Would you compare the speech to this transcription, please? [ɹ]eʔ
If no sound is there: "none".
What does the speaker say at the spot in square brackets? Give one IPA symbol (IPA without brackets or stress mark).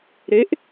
ɾ